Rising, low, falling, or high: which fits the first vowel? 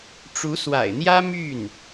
rising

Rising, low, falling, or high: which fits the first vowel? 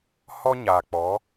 high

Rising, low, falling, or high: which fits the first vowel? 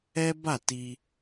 high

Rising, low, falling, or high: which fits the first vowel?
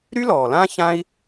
high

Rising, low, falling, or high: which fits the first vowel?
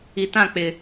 low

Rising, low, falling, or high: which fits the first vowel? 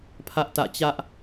high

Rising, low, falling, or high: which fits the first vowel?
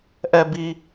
high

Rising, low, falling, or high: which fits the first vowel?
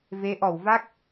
rising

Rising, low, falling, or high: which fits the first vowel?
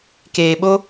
low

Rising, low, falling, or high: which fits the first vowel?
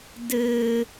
low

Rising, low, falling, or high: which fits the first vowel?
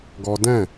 high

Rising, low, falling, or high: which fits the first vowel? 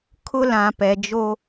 high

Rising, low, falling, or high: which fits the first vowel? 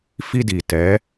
high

